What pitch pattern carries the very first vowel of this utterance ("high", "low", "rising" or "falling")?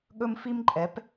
high